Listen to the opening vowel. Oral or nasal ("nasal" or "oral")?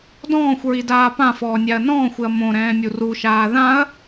nasal